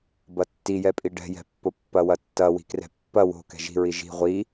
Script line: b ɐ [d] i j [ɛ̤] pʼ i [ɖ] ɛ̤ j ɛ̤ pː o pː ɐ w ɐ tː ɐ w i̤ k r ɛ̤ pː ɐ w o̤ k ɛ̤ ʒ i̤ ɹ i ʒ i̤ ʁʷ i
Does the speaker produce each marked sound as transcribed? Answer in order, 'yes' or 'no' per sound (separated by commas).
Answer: no, no, yes